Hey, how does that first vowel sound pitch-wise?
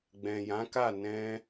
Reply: low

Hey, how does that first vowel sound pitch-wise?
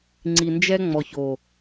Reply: low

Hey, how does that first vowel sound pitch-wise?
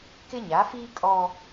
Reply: high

